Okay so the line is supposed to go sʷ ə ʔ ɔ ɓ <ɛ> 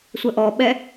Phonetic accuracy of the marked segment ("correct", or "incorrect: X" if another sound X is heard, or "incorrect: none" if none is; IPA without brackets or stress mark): correct